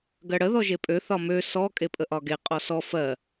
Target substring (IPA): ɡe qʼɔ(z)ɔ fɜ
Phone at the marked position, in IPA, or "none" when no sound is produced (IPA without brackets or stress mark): s